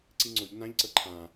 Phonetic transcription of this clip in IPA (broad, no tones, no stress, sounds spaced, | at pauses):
ǀ i ŋ͡ǀ o ʎ n ã ʎ ǀ ɤ ǃʰ ã